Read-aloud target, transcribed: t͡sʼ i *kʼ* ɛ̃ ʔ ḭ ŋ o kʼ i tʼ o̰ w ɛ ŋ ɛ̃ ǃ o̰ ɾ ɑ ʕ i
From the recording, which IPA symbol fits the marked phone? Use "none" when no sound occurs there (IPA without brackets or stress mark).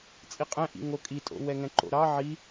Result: qʼ